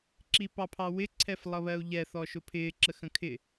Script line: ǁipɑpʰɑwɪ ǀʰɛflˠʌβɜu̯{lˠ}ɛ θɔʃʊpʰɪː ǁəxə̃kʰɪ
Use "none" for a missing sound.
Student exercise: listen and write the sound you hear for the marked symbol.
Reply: ʎ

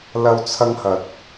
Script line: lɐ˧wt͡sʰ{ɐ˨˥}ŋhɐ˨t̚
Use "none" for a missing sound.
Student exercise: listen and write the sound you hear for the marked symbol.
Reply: ɐ˧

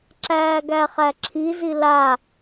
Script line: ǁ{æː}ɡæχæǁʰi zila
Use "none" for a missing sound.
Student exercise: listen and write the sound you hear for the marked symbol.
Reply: æː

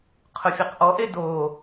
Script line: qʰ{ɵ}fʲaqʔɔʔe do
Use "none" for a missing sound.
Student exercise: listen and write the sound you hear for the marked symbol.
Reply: ʊ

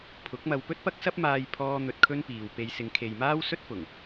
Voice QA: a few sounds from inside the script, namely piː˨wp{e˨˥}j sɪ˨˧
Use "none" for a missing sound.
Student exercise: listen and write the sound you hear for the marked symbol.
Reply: e˧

